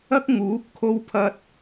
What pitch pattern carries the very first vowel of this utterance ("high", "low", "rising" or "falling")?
high